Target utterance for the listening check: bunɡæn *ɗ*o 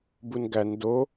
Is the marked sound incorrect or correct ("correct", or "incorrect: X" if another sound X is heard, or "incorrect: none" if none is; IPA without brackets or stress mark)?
incorrect: d